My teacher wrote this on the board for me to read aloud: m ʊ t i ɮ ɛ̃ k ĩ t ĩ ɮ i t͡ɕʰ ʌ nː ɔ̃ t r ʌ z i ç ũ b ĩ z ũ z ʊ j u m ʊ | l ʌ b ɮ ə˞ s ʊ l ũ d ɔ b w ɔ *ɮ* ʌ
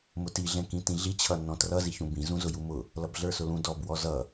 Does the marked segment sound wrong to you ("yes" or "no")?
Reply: yes